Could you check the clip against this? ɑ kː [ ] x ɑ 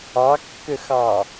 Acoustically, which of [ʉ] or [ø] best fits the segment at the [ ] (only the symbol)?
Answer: ø